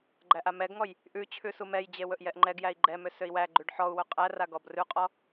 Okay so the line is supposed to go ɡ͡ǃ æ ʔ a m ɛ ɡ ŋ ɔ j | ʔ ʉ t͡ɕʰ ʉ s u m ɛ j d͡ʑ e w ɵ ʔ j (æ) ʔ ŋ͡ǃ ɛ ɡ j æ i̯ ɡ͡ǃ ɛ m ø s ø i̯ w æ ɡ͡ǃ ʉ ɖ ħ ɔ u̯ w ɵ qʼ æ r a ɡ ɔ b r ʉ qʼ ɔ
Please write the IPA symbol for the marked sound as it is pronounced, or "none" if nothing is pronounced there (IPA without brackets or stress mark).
ɛ